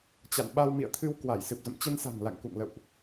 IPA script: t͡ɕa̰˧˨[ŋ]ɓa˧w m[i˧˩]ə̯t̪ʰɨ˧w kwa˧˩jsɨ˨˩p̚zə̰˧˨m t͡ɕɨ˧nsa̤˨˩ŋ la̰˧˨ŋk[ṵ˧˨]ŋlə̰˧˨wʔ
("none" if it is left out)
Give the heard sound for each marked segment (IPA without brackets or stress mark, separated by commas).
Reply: n, ḭ˧˨, ṵ˧˨